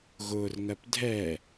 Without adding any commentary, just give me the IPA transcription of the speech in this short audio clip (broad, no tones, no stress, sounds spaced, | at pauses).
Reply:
ɣ ʊː r ŋ ɜ p dʱ ɛ